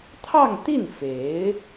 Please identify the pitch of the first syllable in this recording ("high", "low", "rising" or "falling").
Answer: falling